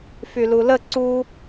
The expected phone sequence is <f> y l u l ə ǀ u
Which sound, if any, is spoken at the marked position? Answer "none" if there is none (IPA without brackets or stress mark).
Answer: f